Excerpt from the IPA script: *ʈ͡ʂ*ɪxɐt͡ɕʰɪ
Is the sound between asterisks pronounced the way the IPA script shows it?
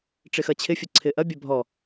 yes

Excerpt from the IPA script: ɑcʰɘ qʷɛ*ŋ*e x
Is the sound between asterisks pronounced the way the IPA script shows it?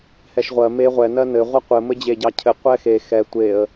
no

